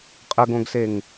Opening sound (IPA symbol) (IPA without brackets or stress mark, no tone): qʼ